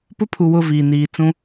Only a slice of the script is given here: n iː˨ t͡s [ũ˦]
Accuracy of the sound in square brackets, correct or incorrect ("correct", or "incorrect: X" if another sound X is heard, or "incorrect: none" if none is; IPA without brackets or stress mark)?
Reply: correct